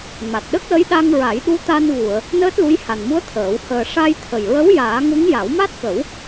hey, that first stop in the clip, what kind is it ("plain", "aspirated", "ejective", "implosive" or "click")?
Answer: plain